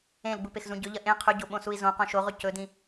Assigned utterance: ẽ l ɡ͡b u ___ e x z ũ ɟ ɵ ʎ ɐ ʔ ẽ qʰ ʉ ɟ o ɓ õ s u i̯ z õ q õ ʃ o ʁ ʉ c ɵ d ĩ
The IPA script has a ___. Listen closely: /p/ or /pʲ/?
p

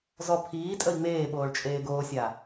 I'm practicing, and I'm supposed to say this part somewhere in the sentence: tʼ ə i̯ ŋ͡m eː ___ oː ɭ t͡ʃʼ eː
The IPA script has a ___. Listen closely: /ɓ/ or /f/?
ɓ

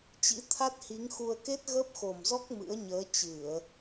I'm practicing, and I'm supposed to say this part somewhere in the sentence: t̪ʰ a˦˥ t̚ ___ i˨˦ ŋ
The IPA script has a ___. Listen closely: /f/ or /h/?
h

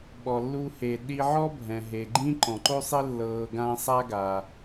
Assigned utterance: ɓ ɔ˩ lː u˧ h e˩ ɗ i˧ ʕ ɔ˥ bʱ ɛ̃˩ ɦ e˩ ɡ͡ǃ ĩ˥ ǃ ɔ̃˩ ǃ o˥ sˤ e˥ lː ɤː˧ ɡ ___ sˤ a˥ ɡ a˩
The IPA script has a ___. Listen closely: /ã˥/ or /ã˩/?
ã˥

